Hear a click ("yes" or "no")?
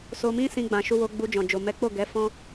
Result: no